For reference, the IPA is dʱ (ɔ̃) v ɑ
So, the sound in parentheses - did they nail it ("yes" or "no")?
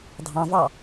no